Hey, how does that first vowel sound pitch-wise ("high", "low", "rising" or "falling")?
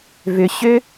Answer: low